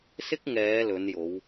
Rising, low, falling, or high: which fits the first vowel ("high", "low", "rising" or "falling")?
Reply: high